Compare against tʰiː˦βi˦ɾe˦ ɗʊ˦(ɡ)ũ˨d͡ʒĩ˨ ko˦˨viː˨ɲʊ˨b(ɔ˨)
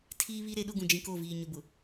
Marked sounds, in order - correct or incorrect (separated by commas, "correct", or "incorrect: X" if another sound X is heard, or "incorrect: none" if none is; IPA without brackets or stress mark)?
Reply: correct, incorrect: ʊ˨